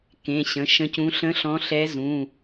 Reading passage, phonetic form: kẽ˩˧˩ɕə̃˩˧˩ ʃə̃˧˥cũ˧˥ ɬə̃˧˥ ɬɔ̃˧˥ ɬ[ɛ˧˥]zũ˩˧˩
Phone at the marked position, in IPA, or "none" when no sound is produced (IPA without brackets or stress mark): ɛ˧˥